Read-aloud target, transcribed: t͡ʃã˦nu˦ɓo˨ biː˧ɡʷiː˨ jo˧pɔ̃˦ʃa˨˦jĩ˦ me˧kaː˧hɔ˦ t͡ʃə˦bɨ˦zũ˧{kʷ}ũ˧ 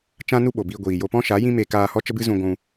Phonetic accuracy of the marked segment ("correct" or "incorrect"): incorrect